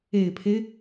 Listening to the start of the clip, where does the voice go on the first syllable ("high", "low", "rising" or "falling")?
low